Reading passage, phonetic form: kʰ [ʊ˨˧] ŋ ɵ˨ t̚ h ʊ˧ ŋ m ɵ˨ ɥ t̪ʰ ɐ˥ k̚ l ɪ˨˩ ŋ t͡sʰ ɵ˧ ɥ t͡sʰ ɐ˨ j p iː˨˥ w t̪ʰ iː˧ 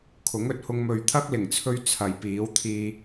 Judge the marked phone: incorrect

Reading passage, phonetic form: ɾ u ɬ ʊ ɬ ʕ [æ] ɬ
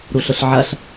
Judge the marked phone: incorrect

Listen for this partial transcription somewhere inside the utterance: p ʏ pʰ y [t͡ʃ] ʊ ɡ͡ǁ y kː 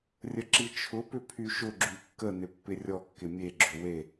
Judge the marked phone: incorrect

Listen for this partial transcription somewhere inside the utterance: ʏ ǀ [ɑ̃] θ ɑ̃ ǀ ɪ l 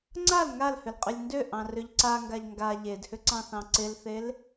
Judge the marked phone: correct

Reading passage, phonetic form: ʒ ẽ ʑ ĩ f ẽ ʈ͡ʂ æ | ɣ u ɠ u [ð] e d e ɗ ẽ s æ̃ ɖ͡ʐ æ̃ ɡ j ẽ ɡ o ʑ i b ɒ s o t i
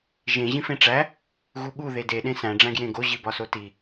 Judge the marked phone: correct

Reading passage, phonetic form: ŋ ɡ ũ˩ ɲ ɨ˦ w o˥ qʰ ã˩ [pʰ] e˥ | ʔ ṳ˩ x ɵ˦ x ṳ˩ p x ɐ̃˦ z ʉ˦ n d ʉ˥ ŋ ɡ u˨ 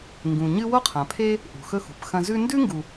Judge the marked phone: correct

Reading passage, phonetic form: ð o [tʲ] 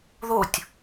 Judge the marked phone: correct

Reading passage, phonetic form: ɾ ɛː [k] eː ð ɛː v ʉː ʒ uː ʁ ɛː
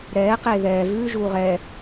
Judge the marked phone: incorrect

